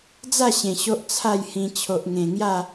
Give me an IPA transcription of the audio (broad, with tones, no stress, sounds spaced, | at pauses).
d͡z a˥˧ ɕ ẽ˨˩ ɕ o˦ ʔ t͡sʰ a˥˧ j h ĩ˧ t͡ɕʰ o˨ ʔ ŋ ẽ˨˩ ŋ j a˥˧